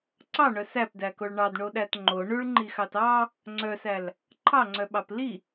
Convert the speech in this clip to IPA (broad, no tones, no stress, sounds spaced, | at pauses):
ǀ ɑ ɳ œ s æ p d æ k o ɭ ɳ ɑ d ɳ o ɗ æ t ŋ͡ǃ o ɳ ʉ ɭ ŋ͡ǃ i x ɑ t ɑ | ŋ͡ǀ œ s æ l | ǃʰ ɑ ŋ͡ǀ œ ɓ ɑ p l i